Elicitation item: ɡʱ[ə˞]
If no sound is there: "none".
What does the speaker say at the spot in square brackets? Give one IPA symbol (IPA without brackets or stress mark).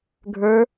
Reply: ə˞